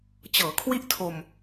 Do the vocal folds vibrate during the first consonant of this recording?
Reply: no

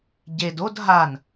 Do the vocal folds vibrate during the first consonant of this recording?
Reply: yes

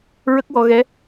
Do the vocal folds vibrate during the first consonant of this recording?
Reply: yes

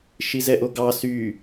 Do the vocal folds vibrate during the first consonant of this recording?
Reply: no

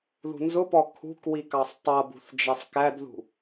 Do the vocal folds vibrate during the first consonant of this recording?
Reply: yes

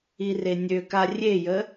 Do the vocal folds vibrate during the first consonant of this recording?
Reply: yes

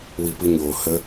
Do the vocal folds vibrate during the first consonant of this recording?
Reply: yes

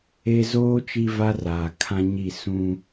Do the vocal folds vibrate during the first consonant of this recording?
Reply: yes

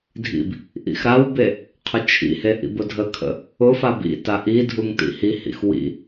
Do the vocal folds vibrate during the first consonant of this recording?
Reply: yes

